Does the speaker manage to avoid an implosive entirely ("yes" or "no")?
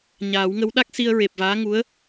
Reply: no